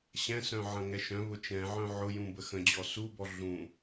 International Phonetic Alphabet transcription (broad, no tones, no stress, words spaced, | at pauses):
ɕɛ̃sœ̃ ʕɐ̃ŋɛʃœ̃βʊ t͡ʃɛ̃ʕœ̃ ʕʊjũ bəxə̃d͡ʑɔ subɔ ɮũ